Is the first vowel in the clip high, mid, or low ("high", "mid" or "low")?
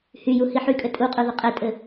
high